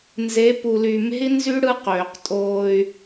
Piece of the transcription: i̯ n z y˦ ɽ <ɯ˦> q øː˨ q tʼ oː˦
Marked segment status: correct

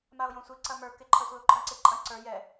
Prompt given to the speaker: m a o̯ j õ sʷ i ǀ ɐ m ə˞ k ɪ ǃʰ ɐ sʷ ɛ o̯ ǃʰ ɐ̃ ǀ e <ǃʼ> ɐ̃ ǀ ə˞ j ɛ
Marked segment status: correct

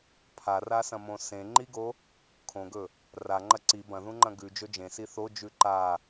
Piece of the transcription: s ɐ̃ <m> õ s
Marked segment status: correct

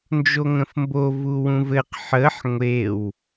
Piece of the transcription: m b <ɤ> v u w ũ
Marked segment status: incorrect: o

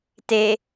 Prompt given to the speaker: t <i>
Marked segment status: incorrect: e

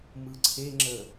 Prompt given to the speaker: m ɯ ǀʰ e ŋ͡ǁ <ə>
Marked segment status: correct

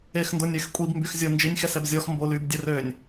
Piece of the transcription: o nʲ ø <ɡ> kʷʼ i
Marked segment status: incorrect: x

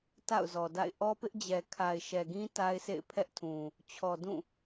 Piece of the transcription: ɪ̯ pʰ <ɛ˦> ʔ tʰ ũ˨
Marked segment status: correct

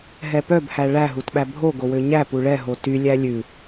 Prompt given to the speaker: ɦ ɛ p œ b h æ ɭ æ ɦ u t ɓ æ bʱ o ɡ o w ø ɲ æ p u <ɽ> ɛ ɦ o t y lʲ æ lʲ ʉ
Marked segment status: incorrect: ɭ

